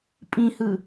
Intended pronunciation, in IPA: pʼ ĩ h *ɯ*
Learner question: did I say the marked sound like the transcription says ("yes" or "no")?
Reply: yes